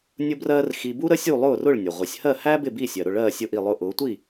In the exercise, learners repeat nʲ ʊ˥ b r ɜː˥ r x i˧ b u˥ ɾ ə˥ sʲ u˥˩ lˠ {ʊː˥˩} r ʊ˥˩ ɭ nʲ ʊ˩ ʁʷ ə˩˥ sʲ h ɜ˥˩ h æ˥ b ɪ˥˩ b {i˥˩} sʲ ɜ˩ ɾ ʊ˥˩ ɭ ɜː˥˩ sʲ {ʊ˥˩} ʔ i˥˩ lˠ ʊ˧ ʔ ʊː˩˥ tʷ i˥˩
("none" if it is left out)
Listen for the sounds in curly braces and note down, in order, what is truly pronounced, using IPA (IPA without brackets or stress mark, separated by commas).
ʊː˥˩, i˥˩, ʊ˥˩